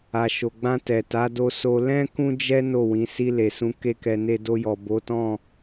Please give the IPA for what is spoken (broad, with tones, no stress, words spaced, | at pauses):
a˨ʃo˨ɡ͡bã˧ tɛ˨ ta˨˦do˧so˧ lɛ̃˦ kũ˦d͡ʒɛ˦ no˦˨wĩ˨˦ si˧le˨sũ˨˦ ke˦kɛ˧ ne˧do˧jɔ˨ bo˨˦tɔ̃˦˨